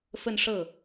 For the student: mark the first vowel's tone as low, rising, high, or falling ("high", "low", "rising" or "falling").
falling